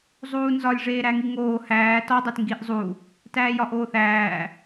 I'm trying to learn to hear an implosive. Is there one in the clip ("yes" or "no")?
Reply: no